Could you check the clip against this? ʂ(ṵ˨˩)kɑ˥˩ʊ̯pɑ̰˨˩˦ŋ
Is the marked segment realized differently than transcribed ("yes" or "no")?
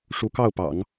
yes